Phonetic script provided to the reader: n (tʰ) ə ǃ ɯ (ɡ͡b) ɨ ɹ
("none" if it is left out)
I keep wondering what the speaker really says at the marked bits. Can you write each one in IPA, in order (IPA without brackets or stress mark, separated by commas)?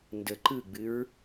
d, ɡ͡b